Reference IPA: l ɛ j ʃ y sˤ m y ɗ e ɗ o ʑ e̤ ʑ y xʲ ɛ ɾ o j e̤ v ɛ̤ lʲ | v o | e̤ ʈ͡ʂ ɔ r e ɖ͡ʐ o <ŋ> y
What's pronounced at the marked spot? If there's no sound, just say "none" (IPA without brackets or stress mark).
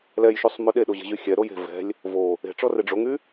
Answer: ŋ